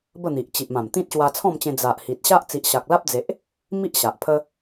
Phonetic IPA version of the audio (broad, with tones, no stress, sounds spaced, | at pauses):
b ə˥˧ n̪ i˨ ʔ t͡ɕ i˨ ʔ m ã˨˩ m t̪ ĩ˦ t̚ ɕ w a˧ t͡sʰ ɔ̃˥˧ m t͡ɕ ẽ˧ d͡z a˨ ʔ h i˨ t̚ ɕ a˦ ʔ t͡s i˨ ʔ ɕ a˨ k̚ l a˦ p̚ d͡z e˨ ʔ | m i˦ ʔ ɕ a˨ ʔ pʰ ə˦